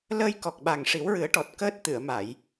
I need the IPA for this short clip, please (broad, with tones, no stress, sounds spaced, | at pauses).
l əː˧ j k ɔ˨˩ k̚ ɓ a˨˩ ŋ ʂ i˨˩˦ w ɹ ɨ˨˩˦ ə̯ ʈ ɔ˨˩ t̚ k əː˦˥ t̚ t̪ ɨ˨˩˨ ə̯ m a˨˩˨ j